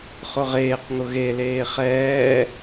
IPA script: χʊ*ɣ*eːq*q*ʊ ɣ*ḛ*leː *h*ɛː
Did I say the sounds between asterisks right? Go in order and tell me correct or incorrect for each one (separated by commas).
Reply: incorrect, incorrect, incorrect, incorrect